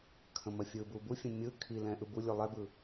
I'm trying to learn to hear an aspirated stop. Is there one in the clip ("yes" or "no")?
yes